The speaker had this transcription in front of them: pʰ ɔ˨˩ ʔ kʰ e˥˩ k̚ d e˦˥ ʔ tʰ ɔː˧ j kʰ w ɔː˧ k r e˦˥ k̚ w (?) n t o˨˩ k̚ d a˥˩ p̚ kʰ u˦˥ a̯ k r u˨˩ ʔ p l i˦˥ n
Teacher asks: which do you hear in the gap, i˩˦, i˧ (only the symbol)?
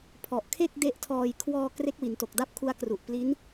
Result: i˩˦